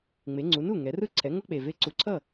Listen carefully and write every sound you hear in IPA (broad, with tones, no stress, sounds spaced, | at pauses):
ŋ͡m e˩˧ ŋ͡ǀ u˩˧ n u˥˩ ŋ ɛ˩˧ r ɯ˥˩ ǀʰ ɛ˩˧ ŋ o˧ k͡p e˩ v e˨˥ ǀ u˩˧ ǀʰ ʌ˥˩